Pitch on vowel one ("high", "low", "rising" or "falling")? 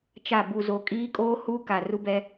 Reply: falling